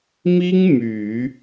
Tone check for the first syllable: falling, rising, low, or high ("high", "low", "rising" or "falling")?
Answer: high